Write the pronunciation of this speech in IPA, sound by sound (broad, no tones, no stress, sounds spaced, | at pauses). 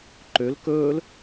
ǃ ø l k ɵː l